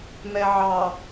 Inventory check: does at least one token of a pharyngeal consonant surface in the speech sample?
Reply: yes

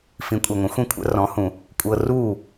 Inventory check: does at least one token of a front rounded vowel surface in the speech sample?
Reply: no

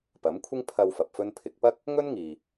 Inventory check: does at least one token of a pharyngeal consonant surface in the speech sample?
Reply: no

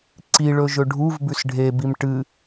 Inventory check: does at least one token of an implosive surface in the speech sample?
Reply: no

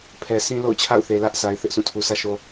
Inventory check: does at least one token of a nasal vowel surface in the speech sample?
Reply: yes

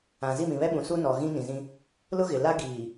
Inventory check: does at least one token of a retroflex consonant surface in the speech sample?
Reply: no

